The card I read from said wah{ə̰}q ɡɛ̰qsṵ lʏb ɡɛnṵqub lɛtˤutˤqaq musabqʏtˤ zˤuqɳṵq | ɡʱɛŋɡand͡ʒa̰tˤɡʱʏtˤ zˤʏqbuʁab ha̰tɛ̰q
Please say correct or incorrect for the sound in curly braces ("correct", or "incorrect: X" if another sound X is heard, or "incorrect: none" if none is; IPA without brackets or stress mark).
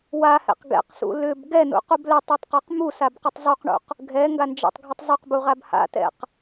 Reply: incorrect: ɛ̰